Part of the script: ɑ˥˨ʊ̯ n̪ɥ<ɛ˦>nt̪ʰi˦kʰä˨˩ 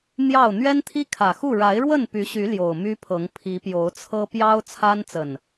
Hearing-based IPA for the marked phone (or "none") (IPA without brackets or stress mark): ɛ˦